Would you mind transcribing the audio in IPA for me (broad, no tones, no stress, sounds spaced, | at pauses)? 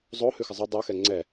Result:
zˤ o h ʉ x ɪ zˤ ʉ dˤ u x ɛ ŋ͡ǀ ɛ